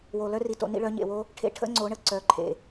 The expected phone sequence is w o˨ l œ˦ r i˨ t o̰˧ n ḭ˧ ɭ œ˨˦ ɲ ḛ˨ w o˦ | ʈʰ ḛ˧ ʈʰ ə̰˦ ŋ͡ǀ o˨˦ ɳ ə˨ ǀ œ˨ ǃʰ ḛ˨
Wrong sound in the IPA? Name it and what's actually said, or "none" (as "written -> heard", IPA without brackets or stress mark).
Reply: none